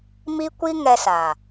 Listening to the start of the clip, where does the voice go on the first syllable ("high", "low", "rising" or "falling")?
high